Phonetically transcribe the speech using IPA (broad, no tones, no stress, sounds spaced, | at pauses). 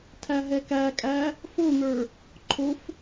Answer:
tʰ æ ɦ ɛ k æ kʼ æ | f o n̪ ə˞ | ǃʰ o f